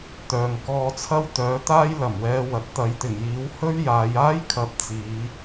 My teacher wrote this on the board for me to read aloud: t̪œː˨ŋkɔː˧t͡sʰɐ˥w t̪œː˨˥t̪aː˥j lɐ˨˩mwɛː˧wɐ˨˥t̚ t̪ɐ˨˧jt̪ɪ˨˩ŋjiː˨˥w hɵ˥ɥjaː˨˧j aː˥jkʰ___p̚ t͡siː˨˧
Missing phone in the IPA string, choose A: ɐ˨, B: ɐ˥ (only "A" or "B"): A